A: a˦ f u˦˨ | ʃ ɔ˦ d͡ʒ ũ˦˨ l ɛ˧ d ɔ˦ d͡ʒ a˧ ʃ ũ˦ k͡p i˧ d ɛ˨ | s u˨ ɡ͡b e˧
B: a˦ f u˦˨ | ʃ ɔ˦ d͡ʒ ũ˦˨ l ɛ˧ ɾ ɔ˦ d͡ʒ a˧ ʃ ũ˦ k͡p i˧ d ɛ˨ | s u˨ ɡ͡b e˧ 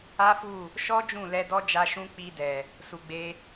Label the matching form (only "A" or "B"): A